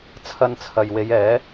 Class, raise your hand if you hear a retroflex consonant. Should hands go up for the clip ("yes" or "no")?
no